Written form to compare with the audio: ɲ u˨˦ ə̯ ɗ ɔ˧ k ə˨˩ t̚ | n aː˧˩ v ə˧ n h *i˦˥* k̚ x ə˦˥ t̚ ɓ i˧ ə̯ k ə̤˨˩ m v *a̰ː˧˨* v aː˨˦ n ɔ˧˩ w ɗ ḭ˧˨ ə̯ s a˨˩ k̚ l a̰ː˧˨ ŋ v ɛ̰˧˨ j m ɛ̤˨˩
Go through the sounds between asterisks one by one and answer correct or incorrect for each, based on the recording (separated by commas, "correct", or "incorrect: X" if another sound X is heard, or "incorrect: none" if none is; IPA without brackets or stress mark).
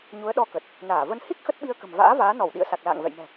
correct, incorrect: a̰ː˧˥